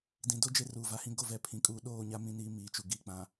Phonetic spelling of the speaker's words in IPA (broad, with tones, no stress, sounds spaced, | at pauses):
d ĩ˨ d o˦ d͡ʒ e˦ r uː˨ v a˨ h ĩ˦ ɡ o˦˨ v ɛ˨ pʰ ĩ˨ kʼ uː˨ ɗ oː˦˨ ɲ a˦ m ĩ˦ n iː˦ m iː˨ t͡ʃ u˨ ɡ iː˨ k͡p ã˨